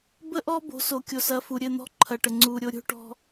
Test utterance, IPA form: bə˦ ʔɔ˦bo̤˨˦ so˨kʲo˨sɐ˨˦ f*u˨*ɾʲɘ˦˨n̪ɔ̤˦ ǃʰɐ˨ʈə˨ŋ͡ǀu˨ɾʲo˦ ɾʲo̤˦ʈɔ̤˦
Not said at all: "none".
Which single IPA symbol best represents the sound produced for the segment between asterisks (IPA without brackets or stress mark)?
u˨